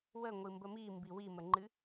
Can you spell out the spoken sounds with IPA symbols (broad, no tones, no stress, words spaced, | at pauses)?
wəŋʷɨmbə mimbi wiməŋ͡ǃɨ